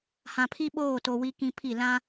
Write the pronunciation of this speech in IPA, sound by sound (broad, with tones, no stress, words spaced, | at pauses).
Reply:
hã˨pʰi˦ɓoː˦˨to˨ wi˦kĩ˦pʰi˦˨ lã˦